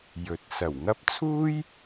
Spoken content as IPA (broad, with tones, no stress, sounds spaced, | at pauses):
j ɵ˨ t̚ s ɐ˨˩ w ŋ ɐ˥ p̚ t͡sʰ uː˥ j